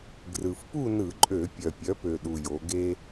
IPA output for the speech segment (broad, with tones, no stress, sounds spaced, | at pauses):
ɡ r ɯ˨˩ f p u˥˨ n ɯ˧˩˧ ǃʼ ø˧˩˧ pʲ œ˨˩ pʲ œ˩˥ p ø˨˩ ɗ u˨˩ j o˩˧ ɡ e˦